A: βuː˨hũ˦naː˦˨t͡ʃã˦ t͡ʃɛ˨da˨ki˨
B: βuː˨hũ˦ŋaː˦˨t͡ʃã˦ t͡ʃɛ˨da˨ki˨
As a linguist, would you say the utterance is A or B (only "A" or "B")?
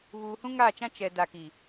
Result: B